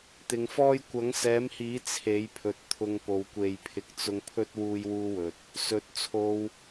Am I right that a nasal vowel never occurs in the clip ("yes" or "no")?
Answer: yes